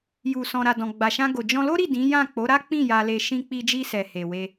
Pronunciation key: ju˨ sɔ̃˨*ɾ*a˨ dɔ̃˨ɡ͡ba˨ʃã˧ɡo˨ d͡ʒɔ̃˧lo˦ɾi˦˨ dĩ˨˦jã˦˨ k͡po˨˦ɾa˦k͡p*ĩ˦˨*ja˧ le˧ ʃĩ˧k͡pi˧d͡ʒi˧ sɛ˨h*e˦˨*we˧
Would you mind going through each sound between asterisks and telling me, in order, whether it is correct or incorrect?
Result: correct, correct, incorrect

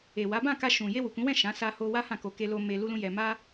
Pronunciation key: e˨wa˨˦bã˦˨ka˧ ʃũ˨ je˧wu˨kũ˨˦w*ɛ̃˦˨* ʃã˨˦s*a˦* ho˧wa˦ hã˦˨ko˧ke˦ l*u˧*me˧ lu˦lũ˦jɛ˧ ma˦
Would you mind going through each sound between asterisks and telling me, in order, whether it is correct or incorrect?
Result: correct, incorrect, incorrect

